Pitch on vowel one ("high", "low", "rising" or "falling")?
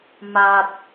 high